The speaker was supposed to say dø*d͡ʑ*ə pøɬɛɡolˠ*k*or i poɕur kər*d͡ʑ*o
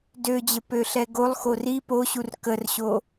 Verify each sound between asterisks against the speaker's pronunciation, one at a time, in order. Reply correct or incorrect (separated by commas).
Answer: correct, incorrect, incorrect